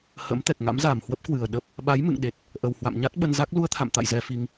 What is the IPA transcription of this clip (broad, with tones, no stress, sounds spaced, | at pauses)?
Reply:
h ə̰˧˥ m t̪ ɛ˨˩ k̚ ŋ a̰˧˥ m z aː˨˩ m h w ə˦˥ p̚ k w ɨ˨˩ ə̯ ɗ ə˦˥ p̚ | ɓ a˨˦ j m ɨ̰˧˨ ŋ ɗ e˨˩ t̚ | ʔ ə˨˩ w h w a̰˧˨ m ɲ a˦˥ t̚ ɓ ə˧ n z a˦˥ k̚ l u˧ ə̯ t̪ʰ a̰˧˨ m t̪ a̰˧˨ j z ɛ˧ f i˧ ŋ